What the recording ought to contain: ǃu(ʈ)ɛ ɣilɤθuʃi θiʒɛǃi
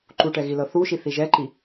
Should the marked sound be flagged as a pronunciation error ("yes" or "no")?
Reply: no